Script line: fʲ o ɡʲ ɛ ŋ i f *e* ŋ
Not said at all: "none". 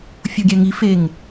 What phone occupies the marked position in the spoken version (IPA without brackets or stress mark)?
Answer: e